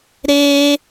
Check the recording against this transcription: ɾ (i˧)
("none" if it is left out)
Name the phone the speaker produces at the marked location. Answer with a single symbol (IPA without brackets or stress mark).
e˧